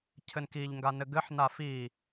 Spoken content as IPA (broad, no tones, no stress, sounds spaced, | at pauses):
cʰ ɘ n k i ʎ ŋ ɡ a n ɘ ɡ ɘ ħ n a f i